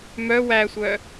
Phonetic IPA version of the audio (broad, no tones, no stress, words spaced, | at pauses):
mœ wæsʷœ